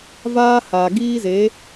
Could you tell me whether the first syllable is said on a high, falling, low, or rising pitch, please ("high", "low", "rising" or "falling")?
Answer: high